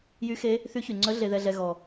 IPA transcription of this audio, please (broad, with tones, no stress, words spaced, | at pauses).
jy˧˥xe˧˥ | θy˧˥çy˩ŋ͡ǀœ˧˥ ɮe˧ðɛ˧ɮɛ˧ ɣɔ˩